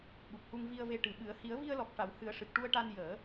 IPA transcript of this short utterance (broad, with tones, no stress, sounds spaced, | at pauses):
ɓ u˨˩ p̚ h u˧ ŋ v i˧ ə̯ v e˧ ʈ ɨ˨˩ ɓ ɨ˨˩˦ ə̯ h i˨˩˦ ə̯ v i˧ ə̯ l ɔ˨˩ k̚ ʂ a˨˩˨ w h ɨ˨˩˦ ə̯ ʂ ɨ˨˩ k̚ ʈ u˧ ə̯ ʈ a˧ n j əː˨˩˦